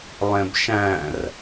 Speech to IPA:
lˠ ẽ b ʃ æ̃ r

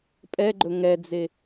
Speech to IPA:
pʼ ɛ ɡ͡ǃ ɵ ŋ ɛ d͡z e

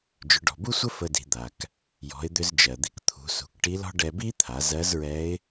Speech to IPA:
d͡ʒ ʏ˩˧ ɖ ɔ̤˩ b u˥ sʷ ə˥ f ə˧ d i̤˩˧ d̪ a˩ k | j ɔ̤˩˧ ɪ̯ d̪ ʏ˧ z d͡ʒ ɜ˩ d̪ i˧ k t̪ʰ ṳ˩˧ s ṳ˩˧ k ʈ i˧˥ l ɔ̤˥ ɖ ɛ˧ b i˥ t̪ʰ a˩˧ z ɜ˧˥ z ɹ ɛ˧˥ ɪ̯

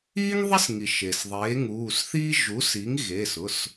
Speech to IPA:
iː˥ ŋ ðˤ e˥ s ŋ i˩ ʃ e˩ s ðˤ eː˩˥ ŋ uː˩˧˩ s θ iː˥ ʒ u˩˥ s i˩˥ ŋ ɣ e˩˧˩ s ʊ˩˧˩ s

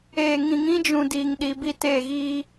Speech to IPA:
eː˨ ŋ ĩ˨ ŋ ĩ˦ d͡ʒ ũ˨ d iː˦ ŋ ɗ i˦ b i˦ t eː˦˨ ɣ iː˦

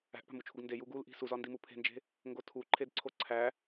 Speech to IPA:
æ̤ ʔ p æ̤ m u t͡ʃʰ u ɡ n d e j u ɡ u l ʔ i̤ s u z ɒ n d i m u pʰ e̤ n d͡ʒ e̤ | ŋ ɡ o tʰ u ǃʰ e d ǀʰ o ǀʰ æ

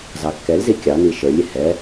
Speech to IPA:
z ɑ kː ɛ l z i kʲ ɑ n i ʃ ə˞ lʲ ɪ h ɛ

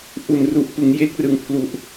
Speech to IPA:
ʔ u˨˩ n r u˨˩ ʔ p ɯ˩˦ ŋ j e˦˥ k̚ r ɯ˨˩ ŋ pʰ l u˨˩ ʔ

